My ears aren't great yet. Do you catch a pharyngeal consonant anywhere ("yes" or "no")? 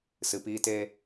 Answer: no